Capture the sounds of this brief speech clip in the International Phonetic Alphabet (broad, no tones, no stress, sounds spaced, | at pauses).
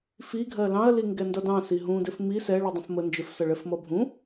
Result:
f i ɡʱ ɜ l ɑ̃ ɐ̯ l i ŋ ɡ ɛ n d ʌ d ɑ̃ s i ɦ ũ d ʏ f m i s ɛ ɭ u dˤ ə̃ f m ə n d͡ʒ ʏ f s ʌ ɭ ɛ f m ʌ bʱ ũ